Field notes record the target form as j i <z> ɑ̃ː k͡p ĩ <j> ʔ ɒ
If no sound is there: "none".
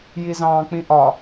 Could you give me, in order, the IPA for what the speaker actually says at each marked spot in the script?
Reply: z, none

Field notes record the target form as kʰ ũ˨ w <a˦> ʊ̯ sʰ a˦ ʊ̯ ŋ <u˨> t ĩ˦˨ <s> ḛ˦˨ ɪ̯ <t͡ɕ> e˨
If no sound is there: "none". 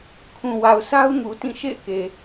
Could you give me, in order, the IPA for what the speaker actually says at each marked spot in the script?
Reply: a˨, u˨, ʃ, k

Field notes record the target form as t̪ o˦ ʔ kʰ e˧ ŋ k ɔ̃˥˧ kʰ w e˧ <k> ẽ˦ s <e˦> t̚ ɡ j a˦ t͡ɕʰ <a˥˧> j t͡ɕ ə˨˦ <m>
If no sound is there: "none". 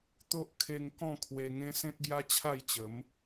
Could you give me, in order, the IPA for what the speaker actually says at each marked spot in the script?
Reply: ŋ, ẽ˦, a˥˧, m

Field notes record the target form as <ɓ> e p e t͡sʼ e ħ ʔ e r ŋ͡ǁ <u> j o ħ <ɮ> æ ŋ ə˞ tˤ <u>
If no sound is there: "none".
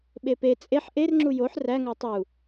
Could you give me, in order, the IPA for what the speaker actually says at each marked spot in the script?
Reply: ɓ, u, r, u

